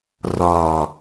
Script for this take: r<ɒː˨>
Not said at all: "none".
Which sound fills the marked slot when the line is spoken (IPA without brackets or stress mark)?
ɒː˨